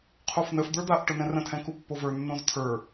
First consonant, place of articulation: uvular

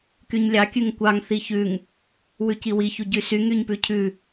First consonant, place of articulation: velar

